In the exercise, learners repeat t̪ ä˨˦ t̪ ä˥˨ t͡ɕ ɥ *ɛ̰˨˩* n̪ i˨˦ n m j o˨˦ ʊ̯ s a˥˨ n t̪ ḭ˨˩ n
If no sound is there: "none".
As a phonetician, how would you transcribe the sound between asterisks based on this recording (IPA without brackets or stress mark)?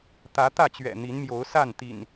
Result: ɛ̰˨˩